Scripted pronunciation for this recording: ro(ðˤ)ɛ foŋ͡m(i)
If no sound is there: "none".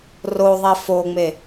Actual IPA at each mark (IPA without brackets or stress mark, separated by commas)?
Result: ðˤ, e